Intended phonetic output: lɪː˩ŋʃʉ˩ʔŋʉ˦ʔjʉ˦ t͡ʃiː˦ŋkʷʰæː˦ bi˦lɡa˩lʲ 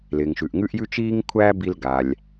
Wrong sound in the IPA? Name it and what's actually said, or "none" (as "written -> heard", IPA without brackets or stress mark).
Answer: none